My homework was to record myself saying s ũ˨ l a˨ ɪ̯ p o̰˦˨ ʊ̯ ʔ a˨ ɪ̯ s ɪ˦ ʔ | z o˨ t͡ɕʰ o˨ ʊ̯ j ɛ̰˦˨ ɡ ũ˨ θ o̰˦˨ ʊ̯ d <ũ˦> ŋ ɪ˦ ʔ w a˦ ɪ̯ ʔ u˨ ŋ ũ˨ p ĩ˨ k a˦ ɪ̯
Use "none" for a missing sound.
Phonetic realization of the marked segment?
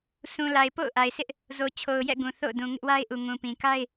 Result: ũ˨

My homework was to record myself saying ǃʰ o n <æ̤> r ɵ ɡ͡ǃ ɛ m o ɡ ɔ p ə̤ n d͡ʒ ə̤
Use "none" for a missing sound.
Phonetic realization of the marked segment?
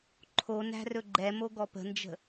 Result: æ̤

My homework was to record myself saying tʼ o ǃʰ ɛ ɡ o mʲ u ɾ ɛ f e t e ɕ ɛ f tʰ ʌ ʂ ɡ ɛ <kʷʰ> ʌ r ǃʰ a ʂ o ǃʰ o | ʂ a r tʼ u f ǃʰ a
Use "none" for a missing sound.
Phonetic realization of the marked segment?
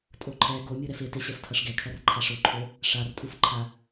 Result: kʰ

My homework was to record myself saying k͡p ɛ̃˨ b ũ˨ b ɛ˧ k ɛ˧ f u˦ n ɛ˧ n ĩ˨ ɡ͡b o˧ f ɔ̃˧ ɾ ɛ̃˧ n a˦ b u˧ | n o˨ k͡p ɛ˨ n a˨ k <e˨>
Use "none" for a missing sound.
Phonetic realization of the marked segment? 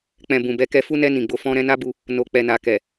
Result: ɛ˨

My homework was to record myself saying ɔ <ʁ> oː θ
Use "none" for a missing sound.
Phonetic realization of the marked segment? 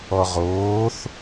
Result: ʁ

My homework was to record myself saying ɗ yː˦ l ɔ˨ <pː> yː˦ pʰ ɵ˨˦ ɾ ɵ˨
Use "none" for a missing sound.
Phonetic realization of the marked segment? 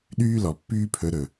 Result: pː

